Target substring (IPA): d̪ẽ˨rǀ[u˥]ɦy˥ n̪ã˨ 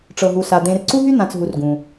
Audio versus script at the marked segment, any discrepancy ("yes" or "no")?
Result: no